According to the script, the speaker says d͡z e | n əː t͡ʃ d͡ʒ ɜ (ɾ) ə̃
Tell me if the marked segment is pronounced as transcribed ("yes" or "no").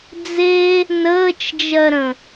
yes